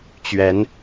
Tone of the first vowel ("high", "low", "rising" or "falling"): rising